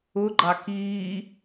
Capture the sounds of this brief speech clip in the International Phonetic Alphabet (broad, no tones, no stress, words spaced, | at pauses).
ʊɡ͡ǃɑ kiː